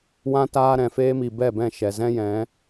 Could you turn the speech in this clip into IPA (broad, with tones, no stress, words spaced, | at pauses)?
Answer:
wã˧taː˧ɾɛ̃˨ feː˧mi˨bɛ˦˨bɛ̃˦˨ ʃɛ˨ zɛ̃˦jɛ̃˨˦